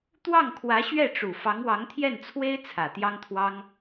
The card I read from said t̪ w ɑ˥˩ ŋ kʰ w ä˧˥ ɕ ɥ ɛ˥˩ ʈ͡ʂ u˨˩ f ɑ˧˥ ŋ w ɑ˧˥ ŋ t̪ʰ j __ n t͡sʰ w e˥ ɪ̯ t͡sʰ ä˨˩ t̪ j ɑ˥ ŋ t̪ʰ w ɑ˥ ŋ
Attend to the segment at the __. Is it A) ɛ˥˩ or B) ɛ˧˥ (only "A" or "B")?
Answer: A